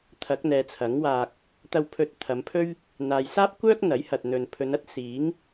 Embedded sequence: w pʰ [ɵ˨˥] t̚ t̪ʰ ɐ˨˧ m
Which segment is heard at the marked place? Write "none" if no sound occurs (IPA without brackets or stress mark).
ɵ˧